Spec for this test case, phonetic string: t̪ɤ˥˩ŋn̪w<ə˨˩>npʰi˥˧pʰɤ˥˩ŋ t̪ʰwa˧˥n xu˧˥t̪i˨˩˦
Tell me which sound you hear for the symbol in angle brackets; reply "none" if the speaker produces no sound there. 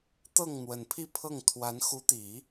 ə˨˩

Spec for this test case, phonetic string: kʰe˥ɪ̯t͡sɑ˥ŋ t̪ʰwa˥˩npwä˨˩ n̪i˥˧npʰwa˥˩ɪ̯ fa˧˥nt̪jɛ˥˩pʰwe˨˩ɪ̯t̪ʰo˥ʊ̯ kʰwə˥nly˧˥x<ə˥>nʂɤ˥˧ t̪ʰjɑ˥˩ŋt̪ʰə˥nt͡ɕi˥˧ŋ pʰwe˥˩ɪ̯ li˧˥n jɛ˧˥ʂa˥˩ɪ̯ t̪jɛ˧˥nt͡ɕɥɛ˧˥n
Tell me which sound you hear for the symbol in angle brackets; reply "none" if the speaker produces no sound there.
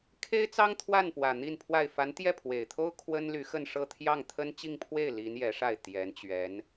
ə˥˧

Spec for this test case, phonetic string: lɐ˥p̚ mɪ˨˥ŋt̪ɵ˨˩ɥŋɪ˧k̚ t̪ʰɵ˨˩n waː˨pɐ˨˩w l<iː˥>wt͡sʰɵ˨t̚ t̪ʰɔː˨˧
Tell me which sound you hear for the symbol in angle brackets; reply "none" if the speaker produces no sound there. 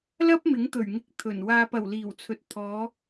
iː˨˩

